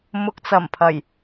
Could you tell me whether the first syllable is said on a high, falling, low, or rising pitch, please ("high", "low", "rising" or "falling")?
low